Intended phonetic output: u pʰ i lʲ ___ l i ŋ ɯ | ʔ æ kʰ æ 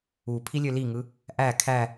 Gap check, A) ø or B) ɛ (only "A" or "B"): A